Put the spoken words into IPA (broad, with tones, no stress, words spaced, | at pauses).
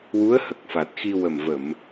wu˧˥ə̯hə˨˩k̚fa˨˩t̚xi˧ wə˨˩mvə˨˩˨m